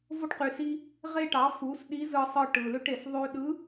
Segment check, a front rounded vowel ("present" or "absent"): present